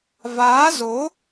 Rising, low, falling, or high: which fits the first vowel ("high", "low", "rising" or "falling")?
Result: rising